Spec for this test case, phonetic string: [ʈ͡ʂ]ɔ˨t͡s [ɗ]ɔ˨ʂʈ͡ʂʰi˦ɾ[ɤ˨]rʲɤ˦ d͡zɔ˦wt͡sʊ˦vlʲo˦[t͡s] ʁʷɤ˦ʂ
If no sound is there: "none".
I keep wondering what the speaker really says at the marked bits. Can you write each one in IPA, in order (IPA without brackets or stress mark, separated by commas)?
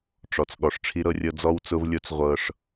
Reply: ʈ͡ʂ, ɠ, ɤ˦, t͡s